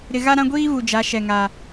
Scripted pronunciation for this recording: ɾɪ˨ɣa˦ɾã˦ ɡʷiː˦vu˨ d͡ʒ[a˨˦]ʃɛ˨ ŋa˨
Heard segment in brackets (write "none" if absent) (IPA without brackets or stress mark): a˨˦